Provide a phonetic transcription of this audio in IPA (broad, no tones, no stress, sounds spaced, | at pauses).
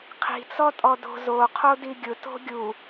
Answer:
qʰ i̤ t͡s ɔ tʼ ɔ d o̤ z o qʰ o d i ɡʲ ʊ t o̤ ɡʲ u